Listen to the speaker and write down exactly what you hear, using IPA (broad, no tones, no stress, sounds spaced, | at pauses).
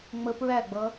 ŋ͡m ə p ɹ æ ɡ͡b ʌ